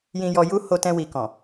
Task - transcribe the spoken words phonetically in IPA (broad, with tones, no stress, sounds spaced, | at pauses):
j ĩ˨ j ɔ˨ j u˧ h o˧ t ɛ̃˧ w i˨ k ɔ̃˨